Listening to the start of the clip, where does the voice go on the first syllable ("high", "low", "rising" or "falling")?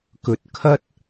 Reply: low